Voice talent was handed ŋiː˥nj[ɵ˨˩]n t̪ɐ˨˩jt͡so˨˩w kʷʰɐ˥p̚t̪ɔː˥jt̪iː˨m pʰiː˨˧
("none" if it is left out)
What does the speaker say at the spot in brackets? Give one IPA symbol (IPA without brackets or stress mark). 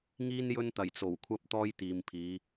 ɵ˥